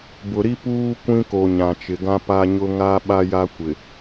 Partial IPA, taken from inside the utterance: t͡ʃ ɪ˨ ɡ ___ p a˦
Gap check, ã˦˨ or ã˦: ã˦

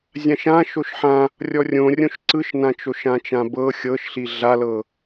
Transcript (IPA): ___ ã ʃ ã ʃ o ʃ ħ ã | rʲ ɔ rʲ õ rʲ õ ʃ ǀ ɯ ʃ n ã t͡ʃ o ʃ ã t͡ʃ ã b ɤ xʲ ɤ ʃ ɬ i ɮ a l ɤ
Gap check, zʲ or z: zʲ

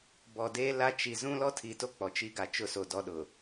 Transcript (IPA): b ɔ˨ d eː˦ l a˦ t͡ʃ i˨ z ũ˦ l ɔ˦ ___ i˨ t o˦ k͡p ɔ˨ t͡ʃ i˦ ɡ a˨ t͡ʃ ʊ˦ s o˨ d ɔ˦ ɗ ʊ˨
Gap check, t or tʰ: tʰ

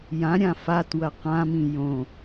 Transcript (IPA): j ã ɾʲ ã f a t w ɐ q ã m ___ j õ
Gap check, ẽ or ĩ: ĩ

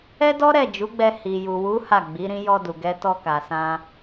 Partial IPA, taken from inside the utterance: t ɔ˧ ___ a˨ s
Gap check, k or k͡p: k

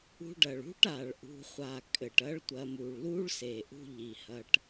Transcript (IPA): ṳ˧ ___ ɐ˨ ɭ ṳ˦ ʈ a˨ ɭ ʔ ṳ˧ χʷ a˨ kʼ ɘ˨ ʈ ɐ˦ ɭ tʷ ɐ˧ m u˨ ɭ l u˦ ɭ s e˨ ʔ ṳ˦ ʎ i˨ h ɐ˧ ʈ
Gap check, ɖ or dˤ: ɖ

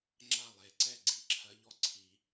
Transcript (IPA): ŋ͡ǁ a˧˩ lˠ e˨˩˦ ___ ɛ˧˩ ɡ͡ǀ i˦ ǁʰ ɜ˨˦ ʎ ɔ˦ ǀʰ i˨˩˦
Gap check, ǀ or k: ǀ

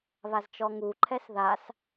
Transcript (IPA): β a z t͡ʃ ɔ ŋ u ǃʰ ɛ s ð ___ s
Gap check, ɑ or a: a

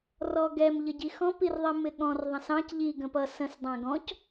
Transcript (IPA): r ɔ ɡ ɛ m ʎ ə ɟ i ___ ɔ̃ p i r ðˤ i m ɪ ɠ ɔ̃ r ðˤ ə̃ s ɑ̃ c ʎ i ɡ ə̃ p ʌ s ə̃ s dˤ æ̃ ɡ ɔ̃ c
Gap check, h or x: x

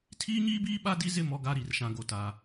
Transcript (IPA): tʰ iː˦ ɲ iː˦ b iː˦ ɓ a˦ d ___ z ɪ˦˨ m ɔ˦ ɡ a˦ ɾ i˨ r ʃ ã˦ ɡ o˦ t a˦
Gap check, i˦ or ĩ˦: i˦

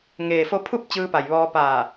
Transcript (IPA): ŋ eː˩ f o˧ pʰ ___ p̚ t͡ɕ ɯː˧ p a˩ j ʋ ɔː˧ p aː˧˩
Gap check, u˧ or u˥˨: u˥˨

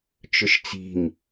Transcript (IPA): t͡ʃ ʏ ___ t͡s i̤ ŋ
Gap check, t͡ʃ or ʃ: ʃ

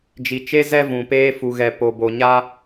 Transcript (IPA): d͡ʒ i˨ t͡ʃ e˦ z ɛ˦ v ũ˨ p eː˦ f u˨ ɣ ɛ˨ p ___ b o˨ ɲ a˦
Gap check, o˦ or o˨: o˨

